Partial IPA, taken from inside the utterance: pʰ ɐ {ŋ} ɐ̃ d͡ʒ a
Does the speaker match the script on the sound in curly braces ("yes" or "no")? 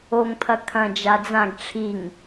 no